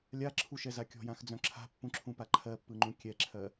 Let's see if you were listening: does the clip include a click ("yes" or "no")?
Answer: yes